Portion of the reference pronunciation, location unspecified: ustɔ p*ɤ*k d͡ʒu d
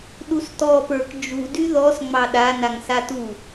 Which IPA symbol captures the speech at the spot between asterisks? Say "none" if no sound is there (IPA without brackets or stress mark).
ə˞